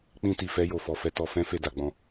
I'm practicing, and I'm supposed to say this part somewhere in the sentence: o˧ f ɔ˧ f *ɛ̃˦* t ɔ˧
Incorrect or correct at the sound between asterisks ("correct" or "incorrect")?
incorrect